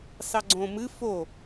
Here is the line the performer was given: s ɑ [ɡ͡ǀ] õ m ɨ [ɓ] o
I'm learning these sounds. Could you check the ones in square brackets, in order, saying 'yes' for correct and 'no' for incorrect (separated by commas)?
yes, no